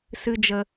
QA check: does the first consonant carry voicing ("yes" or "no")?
no